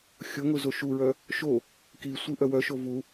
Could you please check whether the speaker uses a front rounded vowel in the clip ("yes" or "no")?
yes